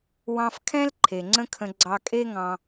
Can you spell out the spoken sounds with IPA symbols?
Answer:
w ɑ̃˧ f kʰ ɛ̃˦ l ǃʰ e˨ ŋ͡ǀ ə̃˦ kʰ ə̃˧ ɡ͡ǀ ɑ˧ kʼ e˦ ŋ ɑ̃˧

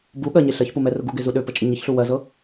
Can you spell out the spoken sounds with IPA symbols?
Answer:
b u ɠ ɜ ɲ e ɬ ɜ ç p u m ɛ r ʊ ɡ u ɡ e z u ɗ ø p ə t͡ʃʼ ə ɲ ə ç ɬ u w ɜ z ɤ

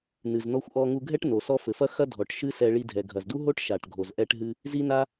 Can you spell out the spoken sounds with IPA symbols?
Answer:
n ɨ˩ z n ɔ˧ xʷ ʔ ɔ˧ ŋ u˧ ɡʱ ɛ˥ ʈ n o˩ s ɔ˥ f ɘ˩ f ɐ˥ x ɐ˥ dʱ ɔ˩ ʈ ʃ ɨ˥ s ɛ˧ ɭ i˧ dʱ ɛ˩ ɡʱ ɐ˩ z d u˥ ɦ o˥ ʈ ʃ a˩ ʈ ɡʱ o˩ z ʔ ɛ˧ ʈ ɦ ɨ˧ | z i˥ n a˥

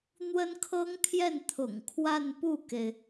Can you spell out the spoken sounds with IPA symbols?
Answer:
n̪ w ə˥ n kʰ ɤ˥ ŋ t̪ʰ j ɛ˥˩ n t̪ʰ ʊ̰˨˩ ŋ kʰ w a˥˧ n p u˥˩ k e˩ ɪ̯

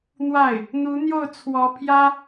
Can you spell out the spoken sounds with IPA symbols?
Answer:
n̪ w a˥˩ ɪ̯ | n̪ u˧˥ n̪ j o˥˩ ʊ̯ t͡sʰ w ɔ˧˥ pʰ j ä˥

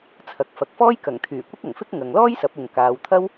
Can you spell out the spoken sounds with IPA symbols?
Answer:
t͡sʰ ɐ˧ k̚ f ɐ˧ k̚ f ɔː˥ j k ɐ˨˩ ŋ t̪ʰ yː˨˩ kʷ ɪ˥ k̚ ɐ˨˩ ŋ f ɪ˥ k̚ ŋ ɐ˨ ŋ l ɔː˥ j s ɐ˨˥ p̚ ʊ˨ ŋ k aː˨˧ w t̪ʰ ɐ˥ w

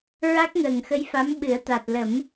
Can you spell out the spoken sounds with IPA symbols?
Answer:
ɹ a˦˥ k̚ ŋ əː˨˩ ŋ x ə˧˥ j f a˧˥ m ɓ ɨ˨˩˦ ə̯ t̪ a˨˩ t̚ l ə˨˩˦ m

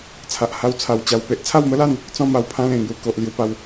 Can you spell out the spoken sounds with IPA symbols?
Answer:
t͡sʰ a˨ ʔ h a˧ w t͡sʰ a˨˩ w t͡ɕ a˨˩ w p e˦ ʔ t͡sʰ a˥˧ w m ə˦ l a˥˧ n | t͡s ɔ̃˥˧ m a˧ w pʰ ã˦ l ẽ˨˩ ŋ j u˧ k o˨ ʔ l j u˧ p a˧ w

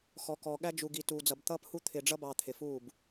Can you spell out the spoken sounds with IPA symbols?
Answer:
x ɔ˨ k ɔ˨ ɠ æ˦ d͡ʒ u˨ ɡ i˨ t uː˨ d͡z ʌ˨ b t̪ ʌː˦ p h u˦ t̪ʰ ɪ˨ ɖ͡ʐ ʌ˦ b ɑ˨ t̪ʰ ɪ˨ f uː˦˨ b

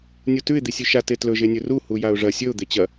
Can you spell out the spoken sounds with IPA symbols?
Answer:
nʲ u t ʉ ɪ̯ d̪ i sʲ ʉ ʃ a t e t l ɵ ʒ e nʲ ɵ r u h u j a ʊ̯ ʐ ɐ sʲ ɵ ʊ̯ d̪ e t͡ɕ ɐ

